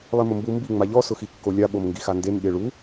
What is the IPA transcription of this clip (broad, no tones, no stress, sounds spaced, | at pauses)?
lˠ i m ʊ m b u m b i ŋ͡m a ʎ ɔ s ʊ x i kː o lʲ a ɓ o m ŋ ɡ i x a n d e m ɓ e ɭ u